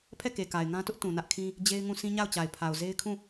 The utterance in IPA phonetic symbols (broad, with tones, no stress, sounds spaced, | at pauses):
pʰ ɛ˦˨ k e˨ k a˨ ɪ̯ ŋ ã˦ t ʊ˦ ʔ t ũ˨ n ä˦ ʔ kʰ ĩ˦ | d͡ʑ e˦ ɪ̯ ŋ ũ˦˨ sʰ ĩ˦ ɲ a˦˨ ʊ̯ t͡ɕ a˨ ɪ̯ pʰ a˨ ʊ̯ z e˦ ɪ̯ kʰ ũ˦˨